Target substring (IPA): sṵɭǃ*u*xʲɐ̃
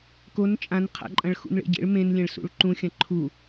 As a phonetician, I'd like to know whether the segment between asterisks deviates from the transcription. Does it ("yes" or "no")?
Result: yes